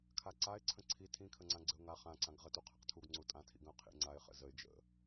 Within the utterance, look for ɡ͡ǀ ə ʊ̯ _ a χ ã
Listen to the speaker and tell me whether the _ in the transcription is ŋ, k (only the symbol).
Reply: ŋ